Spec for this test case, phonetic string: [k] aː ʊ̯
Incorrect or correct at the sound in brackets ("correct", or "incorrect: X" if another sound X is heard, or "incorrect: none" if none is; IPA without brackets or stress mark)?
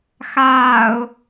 incorrect: x